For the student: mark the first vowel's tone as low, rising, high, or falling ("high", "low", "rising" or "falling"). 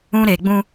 high